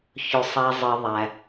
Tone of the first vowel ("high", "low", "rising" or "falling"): low